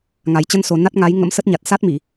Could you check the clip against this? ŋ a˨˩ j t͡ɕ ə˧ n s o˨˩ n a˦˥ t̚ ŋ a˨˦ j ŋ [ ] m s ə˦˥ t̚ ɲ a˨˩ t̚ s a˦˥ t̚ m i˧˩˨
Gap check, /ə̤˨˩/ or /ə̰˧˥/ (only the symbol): ə̰˧˥